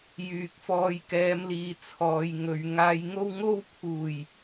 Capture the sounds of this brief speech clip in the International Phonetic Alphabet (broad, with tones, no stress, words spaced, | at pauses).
jyː˨k̚fɔː˧jkɛː˨˧mliː˨ t͡sʰɔː˨˧jŋɵ˨˧ɥ ŋaː˧jŋo˥w ŋo˥wpʰuː˨˩j